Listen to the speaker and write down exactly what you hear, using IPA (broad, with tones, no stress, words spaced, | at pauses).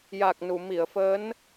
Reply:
ja˨˩k̚nu˨˩˨ mi˨˩˨ə̯fəː˧˥n